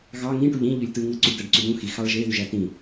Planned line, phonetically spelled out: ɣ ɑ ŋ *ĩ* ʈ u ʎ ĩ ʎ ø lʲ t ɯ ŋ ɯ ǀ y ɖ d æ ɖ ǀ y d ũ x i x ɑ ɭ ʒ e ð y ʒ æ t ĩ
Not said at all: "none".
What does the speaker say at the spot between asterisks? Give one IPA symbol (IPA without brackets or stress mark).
ĩ